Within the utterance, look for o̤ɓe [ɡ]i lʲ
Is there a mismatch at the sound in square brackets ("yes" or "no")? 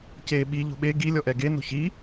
no